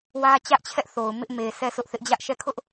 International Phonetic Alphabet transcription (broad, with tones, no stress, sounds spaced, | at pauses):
w ä˦ t͡ɕ ä˦ ʔ t͡ɕʰ ɛ˦ ʔ θ o˨ ʊ̯ m ɪ˦ ʔ m e˨ s ɛ˦˨ s ʊ˦ ʔ θ ɪ˦ ʔ d͡ʑ ä˦ ʔ ʃ ɛ˦˨ kʰ ʊ˦ ʔ